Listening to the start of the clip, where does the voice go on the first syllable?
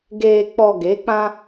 low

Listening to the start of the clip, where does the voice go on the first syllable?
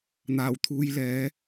low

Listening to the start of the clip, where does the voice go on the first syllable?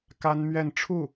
high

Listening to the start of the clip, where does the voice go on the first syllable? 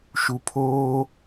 low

